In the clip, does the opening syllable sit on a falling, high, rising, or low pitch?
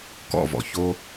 falling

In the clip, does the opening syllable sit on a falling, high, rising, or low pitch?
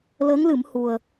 rising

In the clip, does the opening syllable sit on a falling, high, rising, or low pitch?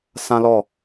high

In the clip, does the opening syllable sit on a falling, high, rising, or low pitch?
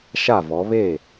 falling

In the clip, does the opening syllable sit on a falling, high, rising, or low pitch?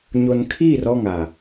low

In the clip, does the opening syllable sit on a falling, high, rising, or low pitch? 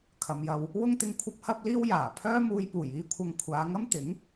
low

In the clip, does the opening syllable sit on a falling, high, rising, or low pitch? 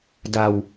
low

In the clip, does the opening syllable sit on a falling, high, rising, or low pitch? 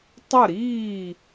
falling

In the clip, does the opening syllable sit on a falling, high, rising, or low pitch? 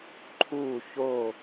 falling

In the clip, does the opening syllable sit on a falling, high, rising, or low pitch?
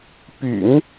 low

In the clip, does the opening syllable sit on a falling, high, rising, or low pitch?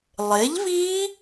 rising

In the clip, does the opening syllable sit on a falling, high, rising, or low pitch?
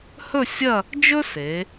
falling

